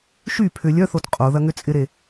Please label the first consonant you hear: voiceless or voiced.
voiceless